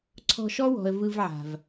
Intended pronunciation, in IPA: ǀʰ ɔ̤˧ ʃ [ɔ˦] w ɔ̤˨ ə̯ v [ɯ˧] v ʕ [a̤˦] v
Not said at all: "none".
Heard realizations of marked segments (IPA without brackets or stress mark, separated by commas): ɔ˦, ɯ˧, a̤˨